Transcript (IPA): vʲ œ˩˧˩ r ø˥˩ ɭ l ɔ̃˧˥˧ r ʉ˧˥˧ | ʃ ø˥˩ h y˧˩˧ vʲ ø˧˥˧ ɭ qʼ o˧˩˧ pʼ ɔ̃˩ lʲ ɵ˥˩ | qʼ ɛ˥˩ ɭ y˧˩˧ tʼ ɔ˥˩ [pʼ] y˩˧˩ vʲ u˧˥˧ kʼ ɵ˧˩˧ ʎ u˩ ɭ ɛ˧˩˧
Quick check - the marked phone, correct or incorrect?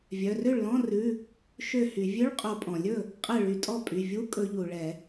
correct